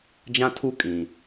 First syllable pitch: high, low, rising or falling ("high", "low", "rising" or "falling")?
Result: high